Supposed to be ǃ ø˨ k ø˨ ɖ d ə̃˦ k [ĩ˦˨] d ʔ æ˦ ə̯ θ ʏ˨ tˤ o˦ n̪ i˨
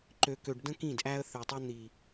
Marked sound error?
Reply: no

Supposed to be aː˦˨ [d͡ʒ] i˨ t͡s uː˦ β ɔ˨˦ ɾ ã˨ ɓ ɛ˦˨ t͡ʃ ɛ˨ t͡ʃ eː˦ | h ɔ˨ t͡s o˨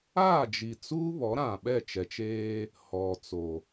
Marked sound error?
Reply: no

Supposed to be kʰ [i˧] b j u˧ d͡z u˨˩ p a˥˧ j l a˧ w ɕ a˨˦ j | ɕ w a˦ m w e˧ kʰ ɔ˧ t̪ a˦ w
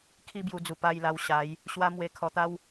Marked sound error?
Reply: yes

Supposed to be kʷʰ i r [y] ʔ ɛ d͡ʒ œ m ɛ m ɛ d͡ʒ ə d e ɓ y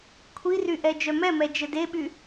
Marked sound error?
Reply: no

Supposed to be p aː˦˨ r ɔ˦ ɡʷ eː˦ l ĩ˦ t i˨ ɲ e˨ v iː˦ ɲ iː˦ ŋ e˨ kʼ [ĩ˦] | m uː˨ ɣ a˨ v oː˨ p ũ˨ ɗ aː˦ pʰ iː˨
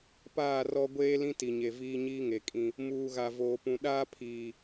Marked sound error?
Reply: no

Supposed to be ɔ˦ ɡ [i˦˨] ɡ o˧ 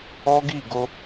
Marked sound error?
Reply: no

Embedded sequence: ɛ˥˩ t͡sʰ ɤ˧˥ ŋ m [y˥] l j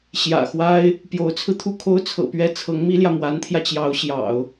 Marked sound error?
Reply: yes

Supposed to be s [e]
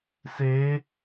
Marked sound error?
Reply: no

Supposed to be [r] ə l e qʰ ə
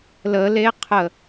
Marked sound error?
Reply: yes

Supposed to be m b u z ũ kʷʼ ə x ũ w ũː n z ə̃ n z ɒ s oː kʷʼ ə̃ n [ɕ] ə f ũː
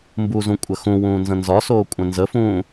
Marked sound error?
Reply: yes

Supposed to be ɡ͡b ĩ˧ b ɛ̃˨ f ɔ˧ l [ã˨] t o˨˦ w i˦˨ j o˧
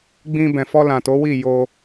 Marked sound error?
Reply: no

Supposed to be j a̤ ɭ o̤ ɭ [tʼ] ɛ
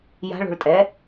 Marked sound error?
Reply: no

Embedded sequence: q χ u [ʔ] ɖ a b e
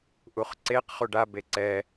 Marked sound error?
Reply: yes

